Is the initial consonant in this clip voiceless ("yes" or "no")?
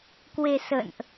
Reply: yes